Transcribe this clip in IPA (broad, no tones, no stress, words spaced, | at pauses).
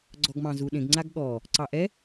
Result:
ɡ͡ǀɔɡmɑ̃zuɗẽɡ ŋ͡ǀaɡɠɔ | ǀɑʔɛ